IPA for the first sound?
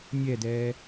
nʲ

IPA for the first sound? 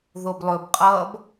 ð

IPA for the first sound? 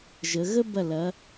ʒ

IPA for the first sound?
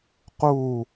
q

